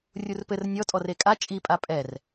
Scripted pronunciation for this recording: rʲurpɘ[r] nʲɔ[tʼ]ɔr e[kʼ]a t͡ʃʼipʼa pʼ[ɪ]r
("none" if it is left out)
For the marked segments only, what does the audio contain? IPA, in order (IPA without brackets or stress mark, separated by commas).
r, tʼ, kʼ, ɛ